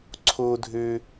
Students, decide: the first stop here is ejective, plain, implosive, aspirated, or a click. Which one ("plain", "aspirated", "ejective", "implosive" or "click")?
click